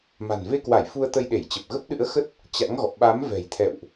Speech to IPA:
ma̤˨˩nve˧kwa˧˩j fu˧ə̯t̪ə˧jɗe˧˩jt͡ɕə˨˩p̚ ɣə˦˥p̚ɗɨ̰˧˥ə̯xə˦˥t̚ | t͡ɕa̰˧˥ŋɣɔ̰˧˨ ɓa˨˦m vɛ̤˨˩jt̪ʰɛ̰˧˨wʔ

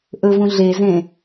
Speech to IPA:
ʔɵvũ ɮezẽ

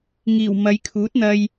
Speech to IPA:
ŋiː˨˩w mɐ˨˧j kʰuː˨˥t̚n̪ɐ˧j

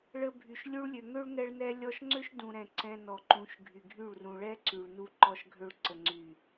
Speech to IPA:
ɭə˧ bʱy˨ʃ lʲu˧ɭlʲø˨ŋø˦ɭ ŋɛ˧ɭnɛ˧ lʲɔ˧ʃŋ͡ǀø˦ʃdũ˨ɾɛ̃˨ ǀɛ̃˧nɔ˨ǃũ˨˦ʃɡʱy˨ ɡʱy˦˨ɭ rũ˨ɭɛ˦ ǀy˨ɭnu˧ ǃɔ˧ʃɡʱø˧ɭ ǀə˨ŋ͡ǀy˨

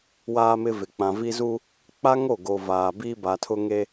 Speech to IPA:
waː˦mɪ˦ vɪ˨k͡pã˨vi˦zu˦ | k͡pa˦ŋo˦˨ɡo˨ vaː˨biː˦ ba˨tʰʊ˦ŋe˦

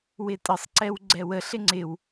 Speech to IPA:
wɪtʼəsˤǀɛw ɡ͡ǀɛwəɬɪ ŋ͡ǀɪw

